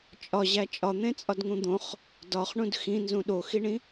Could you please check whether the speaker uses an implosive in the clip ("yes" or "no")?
yes